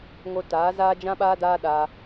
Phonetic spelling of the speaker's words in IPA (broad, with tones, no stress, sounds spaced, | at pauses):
ŋ o˧ t aː˨˦ z aː˦ d͡ʒ ã˦ ɓ aː˦ d aː˦ ɗ aː˧